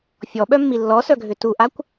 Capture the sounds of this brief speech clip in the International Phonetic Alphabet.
fʲ ɔ ɓ œ mː i lː ɔ s œ ɡʱ ʏ t u ʔ a kʷ

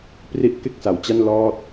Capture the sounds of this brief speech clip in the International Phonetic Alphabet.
p r i˥˩ ʔ k e˥˩ k̚ s a˩˦ w t͡ɕ a˥˩ n l ɔː˥˩ t̚

